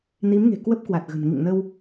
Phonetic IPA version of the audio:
ni˨˦mŋe̤˨˩ kwə˦˥p̚kwa˨˩t̚ɣə̤˨˩n ŋḭ˧˨ŋnə˧w

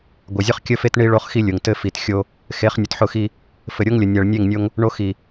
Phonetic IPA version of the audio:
ɡʷɘ˨ zʲʊ˦χkʲə˦fe˦t ɳi˦ɭo˦χxi˦lʲʊ˨ŋ tɘ˦fi˨txʲo˦ | xe˨˦χnʲʊ˨tħʊ˦˨xi˦ | fɘ˨ɾʲo˦ŋlʲə˨ nʲæ˨ɭnʲe˦˨ŋnʲo˦ŋ | ɳo˦ xi˨

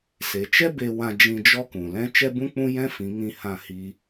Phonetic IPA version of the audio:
se˨t͡ʃɛ˦ be˧wã˧ d͡ʒĩ˧d͡ʒɔ˦kũ˨ lɛ̃˧ t͡ʃɛ˦bũ˦k͡pũ˦ jɛ̃˦fĩ˨˦ŋĩ˧ hã˧ hi˦

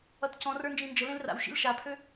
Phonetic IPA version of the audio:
ʌtcɔ̃rə˞ nd͡ʒĩnd͡ʒəlẽl ra̰wʃḭl ʃapʰø

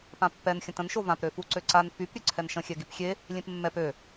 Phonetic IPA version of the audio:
pãpːɛn xʲə̃tə̃n ʃovãp ɾøfuǀøǀan fyp ɾʲøǀʰɛnʃə̃ xʲɛɡipxʲe | lʲẽpmːɛp ø

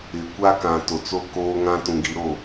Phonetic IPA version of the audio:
ɪ˨ kʷa˦kã˨to˨ t͡so˦koː˦ŋã˦ tũ˨ɡi˨ɾo˦˨

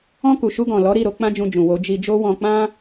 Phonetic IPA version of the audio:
ɔ̃˧ ku˨ʃu˧ɡɔ̃˨ lɔ˨˦ ɾi˦˨ɾo˧ k͡pã˦d͡ʒũ˧ d͡ʒũ˨wo˨˦ d͡ʒi˧d͡ʒo˦ wɔ̃˧ k͡pã˦

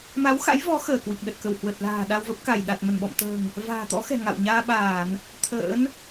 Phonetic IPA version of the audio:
ma˨˦wxa̰˧˥jvɔ˨˦ xəː˧˩kwi˨˩k̚ɗə˨˩t̚ kə˧˩whwə˨˩t̚la̤ː˨˩ ɗa˧wvə˦˥p̚ ka˧˩jɗa˨˩t̚ mə˧˩nɓɔ̰˧˨mt̪ə̤ː˨˩ŋ | va̤ː˨˩t̪ɔ̰˧˥xɛ̤˨˩ ŋa̰˧˨wɲaː˧ɓaː˧˩˨n | t̪ʰə̰ː˧˥n

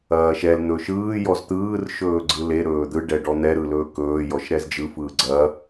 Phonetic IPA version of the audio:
ɐːʃɛl n̪ɵːʃɯː jɔzt̪ɯːr ʃɵːɡ͡ǀɯle ɾɵːd̪ɯ ɖɛɖɔn̪ɛ ɾɯlɵːkɵː jɔʃɾɛzd͡ʒɯ fɯːɡ͡ǀɐː

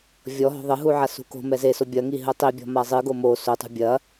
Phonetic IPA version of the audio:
vʲɔ ɦɔ̤ðˤɘɦu ʕasṳko̤mɛ zeso bʲɐŋi ɦɘtˤibʲɔ̤ mazˤɨɡo mo sotˤṳ bʲɐ

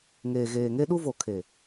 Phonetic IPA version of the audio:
ŋeː˨ɣeː˨ŋe˦ ɗu˦vo˨ kʰe˨

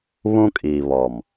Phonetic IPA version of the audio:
βũ˦kʼi˨ βɔ˨m

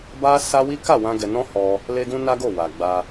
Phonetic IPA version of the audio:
ba˦sa˦ wi˦ka˦˨wã˧ ɡɛ˨nɔ̃˧ hɔ˧ | le˧ɡũ˧ na˦ɡo˦˨wa˨ ɡ͡ba˧

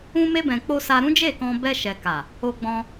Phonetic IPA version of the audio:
ũ˧me˧bɛ̃˨ k͡po˧ sa˧ɾũ˦d͡ʒe˦˨kɔ̃˧ bɛ˧ʃɛ˨ka˨ | o˧ɡ͡bɔ̃˧

